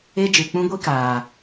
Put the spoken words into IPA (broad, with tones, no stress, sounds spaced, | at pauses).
e˦ d͡ʒ ɨ˨ k͡p ũ˦ ɡʷ i˦ k aː˨